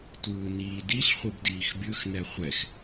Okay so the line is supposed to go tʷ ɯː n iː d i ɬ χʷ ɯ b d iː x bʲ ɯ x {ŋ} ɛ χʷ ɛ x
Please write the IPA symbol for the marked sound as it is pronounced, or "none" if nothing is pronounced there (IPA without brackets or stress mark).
n